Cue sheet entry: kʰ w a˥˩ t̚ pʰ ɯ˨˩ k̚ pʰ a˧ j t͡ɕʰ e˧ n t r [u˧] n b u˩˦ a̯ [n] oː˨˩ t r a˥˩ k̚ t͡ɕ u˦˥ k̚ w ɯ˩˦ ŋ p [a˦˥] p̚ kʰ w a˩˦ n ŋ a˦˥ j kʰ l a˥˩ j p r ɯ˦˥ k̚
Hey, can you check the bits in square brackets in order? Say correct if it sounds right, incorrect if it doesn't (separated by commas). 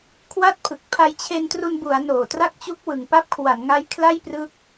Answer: correct, correct, correct